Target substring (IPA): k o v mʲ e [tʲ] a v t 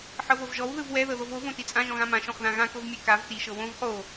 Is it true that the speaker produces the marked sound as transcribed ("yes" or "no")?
no